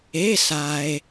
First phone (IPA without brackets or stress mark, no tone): e